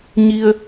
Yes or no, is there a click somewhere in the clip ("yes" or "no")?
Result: no